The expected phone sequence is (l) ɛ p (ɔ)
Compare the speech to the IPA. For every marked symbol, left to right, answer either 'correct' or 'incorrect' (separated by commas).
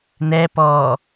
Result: incorrect, correct